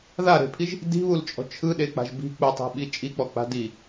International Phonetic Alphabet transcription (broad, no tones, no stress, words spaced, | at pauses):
ðaɾe̤pʰiʒ | di̤βult͡ʃʼɔ̤ t͡ʃʰɯɗek͡pa̤ʒ bi̤ k͡pɯtˤe̤ɓi t͡ʃʼik͡pɔk͡pa̤ di